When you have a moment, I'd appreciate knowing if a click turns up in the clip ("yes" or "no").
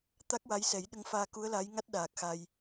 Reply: no